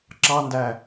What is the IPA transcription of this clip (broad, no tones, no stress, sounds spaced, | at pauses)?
ǁ ɑ n d æ